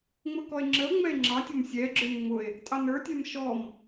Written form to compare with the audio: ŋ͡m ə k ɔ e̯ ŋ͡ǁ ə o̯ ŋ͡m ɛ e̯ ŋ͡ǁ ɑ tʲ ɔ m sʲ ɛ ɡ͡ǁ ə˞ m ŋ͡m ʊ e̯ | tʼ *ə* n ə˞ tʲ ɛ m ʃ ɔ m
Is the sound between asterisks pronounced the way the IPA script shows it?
no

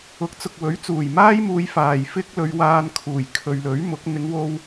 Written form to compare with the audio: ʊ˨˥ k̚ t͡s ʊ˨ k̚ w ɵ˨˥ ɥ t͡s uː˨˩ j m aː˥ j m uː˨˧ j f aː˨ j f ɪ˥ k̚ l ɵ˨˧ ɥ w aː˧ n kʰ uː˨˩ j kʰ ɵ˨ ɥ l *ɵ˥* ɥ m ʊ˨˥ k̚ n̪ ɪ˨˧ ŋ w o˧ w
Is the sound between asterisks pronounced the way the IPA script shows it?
no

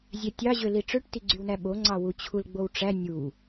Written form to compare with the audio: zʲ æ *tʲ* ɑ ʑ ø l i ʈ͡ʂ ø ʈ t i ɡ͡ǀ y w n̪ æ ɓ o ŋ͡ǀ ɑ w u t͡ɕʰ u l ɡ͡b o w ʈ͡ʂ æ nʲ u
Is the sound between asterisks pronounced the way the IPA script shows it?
yes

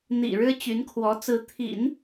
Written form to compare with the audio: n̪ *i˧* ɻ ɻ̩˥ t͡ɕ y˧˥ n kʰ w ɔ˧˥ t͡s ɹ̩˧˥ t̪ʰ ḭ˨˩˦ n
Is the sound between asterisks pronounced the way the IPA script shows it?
no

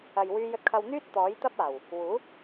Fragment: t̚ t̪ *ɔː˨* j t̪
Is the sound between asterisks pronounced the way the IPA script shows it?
no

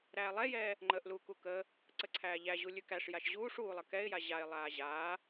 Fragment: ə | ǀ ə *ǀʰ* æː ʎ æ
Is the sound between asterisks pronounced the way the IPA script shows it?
yes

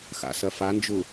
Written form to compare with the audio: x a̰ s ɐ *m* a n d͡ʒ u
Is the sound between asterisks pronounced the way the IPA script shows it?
no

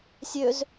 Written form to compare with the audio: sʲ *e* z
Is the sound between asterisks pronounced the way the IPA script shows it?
no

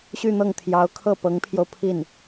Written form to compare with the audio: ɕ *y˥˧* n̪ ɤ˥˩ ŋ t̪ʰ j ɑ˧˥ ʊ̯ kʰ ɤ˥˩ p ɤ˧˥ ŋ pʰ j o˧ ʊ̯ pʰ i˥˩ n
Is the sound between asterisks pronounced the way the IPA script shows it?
yes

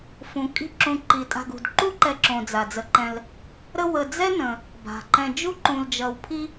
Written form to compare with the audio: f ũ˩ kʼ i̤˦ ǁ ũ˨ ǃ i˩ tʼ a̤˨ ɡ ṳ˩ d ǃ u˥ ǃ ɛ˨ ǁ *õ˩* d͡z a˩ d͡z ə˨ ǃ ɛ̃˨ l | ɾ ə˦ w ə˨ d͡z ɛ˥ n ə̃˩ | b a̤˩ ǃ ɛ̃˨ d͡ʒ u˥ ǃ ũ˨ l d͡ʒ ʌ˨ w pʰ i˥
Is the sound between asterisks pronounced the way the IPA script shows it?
yes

